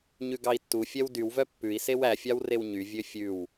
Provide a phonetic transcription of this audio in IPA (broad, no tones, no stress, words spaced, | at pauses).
ɲʉɡɑi̯tːufʲɛw dywvœ pːʉi̯ sewæfʲɑw rewɲyvʲø fʲʉw